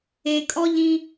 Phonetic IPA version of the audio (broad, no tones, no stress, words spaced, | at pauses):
ekʼɔʎĩ